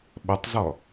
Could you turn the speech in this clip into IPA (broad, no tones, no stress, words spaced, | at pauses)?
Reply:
ɓətˤzɔ